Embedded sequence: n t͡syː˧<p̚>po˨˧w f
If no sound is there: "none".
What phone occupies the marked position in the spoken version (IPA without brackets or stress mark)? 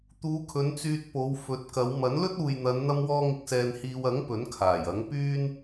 t̚